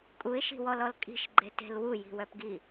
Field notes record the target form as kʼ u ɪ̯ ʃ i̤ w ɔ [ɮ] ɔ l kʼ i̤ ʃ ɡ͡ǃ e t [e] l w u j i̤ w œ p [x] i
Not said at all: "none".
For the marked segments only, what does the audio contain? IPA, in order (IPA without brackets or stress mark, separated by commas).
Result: l, e̤, ɡ